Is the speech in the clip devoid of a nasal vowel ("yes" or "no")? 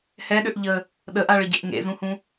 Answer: no